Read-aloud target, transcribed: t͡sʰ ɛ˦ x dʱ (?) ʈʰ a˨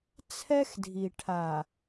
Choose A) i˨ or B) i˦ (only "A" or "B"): A